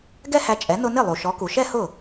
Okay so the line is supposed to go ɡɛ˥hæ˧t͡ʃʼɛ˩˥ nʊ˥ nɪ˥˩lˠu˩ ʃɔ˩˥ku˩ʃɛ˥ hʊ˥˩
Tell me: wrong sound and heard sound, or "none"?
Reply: none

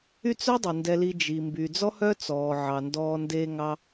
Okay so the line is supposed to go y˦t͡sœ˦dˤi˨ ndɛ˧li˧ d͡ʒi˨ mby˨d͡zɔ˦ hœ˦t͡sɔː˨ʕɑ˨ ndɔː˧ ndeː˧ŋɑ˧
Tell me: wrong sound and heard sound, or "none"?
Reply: none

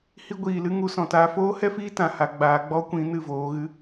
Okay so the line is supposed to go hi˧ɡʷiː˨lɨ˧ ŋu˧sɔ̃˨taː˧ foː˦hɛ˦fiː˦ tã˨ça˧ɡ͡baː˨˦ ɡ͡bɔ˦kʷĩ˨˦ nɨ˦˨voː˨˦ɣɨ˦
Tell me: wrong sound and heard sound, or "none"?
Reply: ç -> h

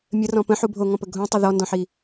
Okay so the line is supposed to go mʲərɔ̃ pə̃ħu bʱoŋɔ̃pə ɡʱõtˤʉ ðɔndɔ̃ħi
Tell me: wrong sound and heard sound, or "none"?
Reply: ʉ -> ə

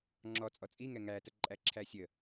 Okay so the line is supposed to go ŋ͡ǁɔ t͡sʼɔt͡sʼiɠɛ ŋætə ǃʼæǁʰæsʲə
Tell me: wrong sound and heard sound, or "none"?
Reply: ɠ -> ŋ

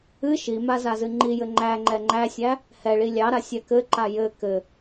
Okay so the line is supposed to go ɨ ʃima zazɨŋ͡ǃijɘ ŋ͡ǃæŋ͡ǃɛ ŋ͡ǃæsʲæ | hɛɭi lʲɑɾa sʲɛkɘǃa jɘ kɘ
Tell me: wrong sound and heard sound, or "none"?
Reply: none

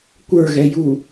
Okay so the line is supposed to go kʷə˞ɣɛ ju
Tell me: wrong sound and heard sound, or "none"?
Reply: none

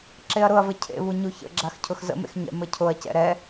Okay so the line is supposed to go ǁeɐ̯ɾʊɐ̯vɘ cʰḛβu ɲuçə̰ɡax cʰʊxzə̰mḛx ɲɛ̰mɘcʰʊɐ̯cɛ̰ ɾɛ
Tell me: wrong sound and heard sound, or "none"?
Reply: ɡ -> ɡ͡ǁ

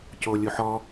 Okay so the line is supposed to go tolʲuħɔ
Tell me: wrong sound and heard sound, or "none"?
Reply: t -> c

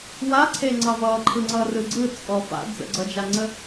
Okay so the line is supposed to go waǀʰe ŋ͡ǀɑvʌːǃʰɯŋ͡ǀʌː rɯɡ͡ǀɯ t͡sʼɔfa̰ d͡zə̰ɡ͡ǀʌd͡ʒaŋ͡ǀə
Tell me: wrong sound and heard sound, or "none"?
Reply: none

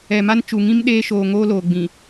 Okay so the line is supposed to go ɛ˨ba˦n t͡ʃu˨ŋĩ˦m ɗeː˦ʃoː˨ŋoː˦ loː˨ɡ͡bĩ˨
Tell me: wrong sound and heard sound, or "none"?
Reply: b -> m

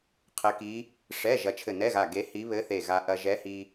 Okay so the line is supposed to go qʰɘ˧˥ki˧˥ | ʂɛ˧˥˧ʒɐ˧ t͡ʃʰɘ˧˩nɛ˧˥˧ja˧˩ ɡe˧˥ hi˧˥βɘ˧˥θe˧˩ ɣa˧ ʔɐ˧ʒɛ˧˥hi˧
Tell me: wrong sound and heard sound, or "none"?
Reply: j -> ɣ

